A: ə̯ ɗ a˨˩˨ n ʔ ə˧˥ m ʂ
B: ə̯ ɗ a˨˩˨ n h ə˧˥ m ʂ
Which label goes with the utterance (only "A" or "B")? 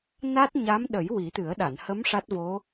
B